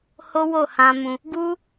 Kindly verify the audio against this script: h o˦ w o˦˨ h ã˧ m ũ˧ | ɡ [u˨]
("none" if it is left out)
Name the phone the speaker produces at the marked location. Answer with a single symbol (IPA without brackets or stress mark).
u˦